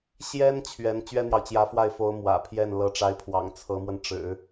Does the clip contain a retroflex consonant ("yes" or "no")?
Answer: yes